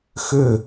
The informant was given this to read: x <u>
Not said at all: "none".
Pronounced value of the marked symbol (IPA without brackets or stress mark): ʏ